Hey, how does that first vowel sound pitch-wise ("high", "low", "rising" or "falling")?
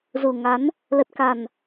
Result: low